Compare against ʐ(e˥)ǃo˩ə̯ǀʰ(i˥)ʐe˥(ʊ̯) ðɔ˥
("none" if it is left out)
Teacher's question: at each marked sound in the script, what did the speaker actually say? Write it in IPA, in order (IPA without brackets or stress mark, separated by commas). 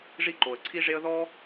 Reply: i˥, i˥, ə̯